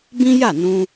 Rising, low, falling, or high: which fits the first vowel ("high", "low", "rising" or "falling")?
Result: high